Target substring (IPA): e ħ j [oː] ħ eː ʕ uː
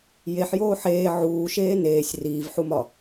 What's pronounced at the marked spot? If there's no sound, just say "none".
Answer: oː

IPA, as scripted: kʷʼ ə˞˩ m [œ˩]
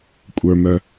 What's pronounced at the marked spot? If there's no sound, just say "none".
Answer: œ˩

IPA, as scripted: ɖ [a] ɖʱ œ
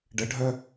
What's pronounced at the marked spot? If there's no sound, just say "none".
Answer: ə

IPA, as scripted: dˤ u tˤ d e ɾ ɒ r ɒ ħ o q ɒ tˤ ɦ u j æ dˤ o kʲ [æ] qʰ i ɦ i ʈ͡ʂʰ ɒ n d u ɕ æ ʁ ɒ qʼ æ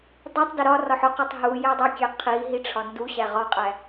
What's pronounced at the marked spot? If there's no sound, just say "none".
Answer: æ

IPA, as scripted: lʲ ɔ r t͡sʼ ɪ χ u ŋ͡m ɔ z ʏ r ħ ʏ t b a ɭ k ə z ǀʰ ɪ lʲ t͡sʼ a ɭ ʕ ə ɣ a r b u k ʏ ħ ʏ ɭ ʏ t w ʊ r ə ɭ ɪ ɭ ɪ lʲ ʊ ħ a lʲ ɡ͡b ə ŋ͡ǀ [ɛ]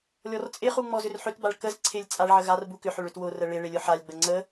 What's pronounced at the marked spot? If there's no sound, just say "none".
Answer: ə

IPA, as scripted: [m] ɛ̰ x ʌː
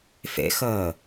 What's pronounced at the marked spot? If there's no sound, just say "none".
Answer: f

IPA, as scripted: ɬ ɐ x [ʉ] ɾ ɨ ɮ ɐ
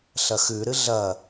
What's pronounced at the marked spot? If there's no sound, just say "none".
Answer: ʉ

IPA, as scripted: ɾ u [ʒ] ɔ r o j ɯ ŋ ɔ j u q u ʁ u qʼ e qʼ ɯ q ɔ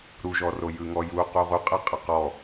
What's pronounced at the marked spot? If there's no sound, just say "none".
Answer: ʒ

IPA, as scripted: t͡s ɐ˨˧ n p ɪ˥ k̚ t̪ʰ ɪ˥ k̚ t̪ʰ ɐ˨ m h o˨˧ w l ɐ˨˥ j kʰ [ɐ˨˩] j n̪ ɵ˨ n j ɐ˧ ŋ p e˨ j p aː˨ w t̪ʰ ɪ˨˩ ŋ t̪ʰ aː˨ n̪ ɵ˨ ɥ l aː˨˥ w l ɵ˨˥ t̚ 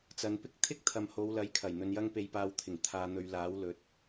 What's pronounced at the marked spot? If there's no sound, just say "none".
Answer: ɐ˨˩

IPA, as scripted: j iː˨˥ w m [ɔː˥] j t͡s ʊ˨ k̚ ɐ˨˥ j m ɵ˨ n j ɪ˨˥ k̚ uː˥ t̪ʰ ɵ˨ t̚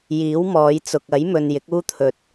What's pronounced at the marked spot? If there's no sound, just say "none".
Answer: ɔː˨˧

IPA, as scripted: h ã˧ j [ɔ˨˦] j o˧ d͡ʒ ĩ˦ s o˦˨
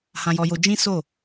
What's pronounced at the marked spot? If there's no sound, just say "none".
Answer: ɔ˧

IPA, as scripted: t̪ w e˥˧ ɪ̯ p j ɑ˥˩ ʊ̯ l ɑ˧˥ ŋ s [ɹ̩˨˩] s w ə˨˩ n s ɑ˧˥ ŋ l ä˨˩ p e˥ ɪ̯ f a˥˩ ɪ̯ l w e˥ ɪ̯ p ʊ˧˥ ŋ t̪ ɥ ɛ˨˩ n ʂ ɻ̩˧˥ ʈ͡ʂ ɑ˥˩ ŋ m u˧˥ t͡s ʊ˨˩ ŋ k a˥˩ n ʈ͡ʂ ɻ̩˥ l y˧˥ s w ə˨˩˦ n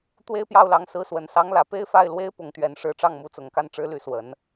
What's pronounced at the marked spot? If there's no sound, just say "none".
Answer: ɹ̩˧˥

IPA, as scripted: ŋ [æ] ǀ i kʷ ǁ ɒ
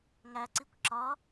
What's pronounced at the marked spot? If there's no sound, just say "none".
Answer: æ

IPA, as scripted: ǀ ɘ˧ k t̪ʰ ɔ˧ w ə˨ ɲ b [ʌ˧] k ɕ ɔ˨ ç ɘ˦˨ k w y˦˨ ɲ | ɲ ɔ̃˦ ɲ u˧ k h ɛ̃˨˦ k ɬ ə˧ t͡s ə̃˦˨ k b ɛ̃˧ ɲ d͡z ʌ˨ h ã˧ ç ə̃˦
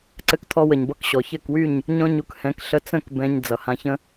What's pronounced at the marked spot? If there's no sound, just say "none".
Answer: ʌ˧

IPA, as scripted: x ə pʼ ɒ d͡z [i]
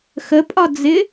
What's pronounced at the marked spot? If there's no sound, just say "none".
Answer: ɪ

